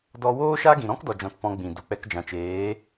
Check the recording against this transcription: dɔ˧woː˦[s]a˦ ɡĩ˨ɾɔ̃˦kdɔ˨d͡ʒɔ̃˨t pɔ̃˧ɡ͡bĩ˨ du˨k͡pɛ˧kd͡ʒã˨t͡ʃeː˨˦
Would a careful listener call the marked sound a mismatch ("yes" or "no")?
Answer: yes